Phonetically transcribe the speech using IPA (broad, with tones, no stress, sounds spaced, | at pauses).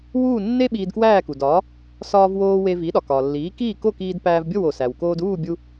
w uː˥˩ nː e˥ ɓ iː˧ d k w æː˥˩ k u˩ d ɒː˩˥ | s ɒː˧ v w oː˧ w e˧ v i˩˥ ɗ ɒ˩ k ɒː˩ lː iː˩˥ k iː˥˩ k o˥˩ k iː˧ d p æː˧ v bʲ o˥˩ w o˩ s æ˩ w k oː˧ d uː˥˩ bʲ u˧